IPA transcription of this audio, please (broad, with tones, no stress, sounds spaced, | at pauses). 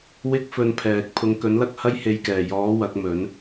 w ɪ˥ k̚ f ɵ˧ n pʰ ɛː˨ k̚ pʰ ʊ˨˧ ŋ k ɵ˨˥ n l ɐ˥ k̚ h ɐ˥ j h e˨˧ j k ɛː˨˩ j ɔː˨˥ w ɐ˨˥ k̚ m ɵ˨˥ n